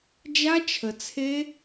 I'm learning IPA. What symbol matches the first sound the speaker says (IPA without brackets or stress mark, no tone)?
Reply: d͡ʒ